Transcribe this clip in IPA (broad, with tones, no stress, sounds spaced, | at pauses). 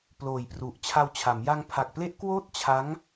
p l oː˨˩ j p r u˨˩ ʔ t͡ɕʰ a˧ w t͡ɕʰ a˩˦ m j a˧ ŋ pʰ a˨˩ k̚ p l e˦˥ ʔ k w oː˥˩ t̚ t͡ɕʰ a˦˥ ŋ